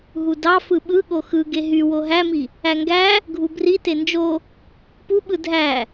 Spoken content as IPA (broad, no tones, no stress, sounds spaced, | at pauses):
ɦ u d ɑ f ɯ ɓ ɯ ɠ o x ɯ ɡ e ɦ y w o ɦ æ m i | æ ŋ ɡ æ | ɡʱ u b r i t e n d͡ʒ o | p u ɓ ɯ dʱ æ